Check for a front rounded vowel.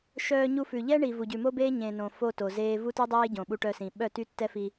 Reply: present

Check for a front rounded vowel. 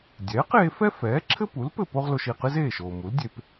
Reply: absent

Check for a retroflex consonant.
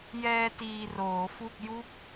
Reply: absent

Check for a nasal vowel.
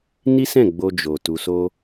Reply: present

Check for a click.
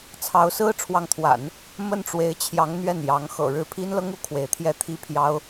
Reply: absent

